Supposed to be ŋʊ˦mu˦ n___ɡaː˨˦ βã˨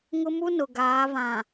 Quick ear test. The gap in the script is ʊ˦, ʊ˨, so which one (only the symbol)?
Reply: ʊ˨